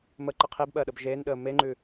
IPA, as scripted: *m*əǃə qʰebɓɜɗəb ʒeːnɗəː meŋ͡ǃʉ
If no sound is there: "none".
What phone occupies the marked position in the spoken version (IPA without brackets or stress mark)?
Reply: m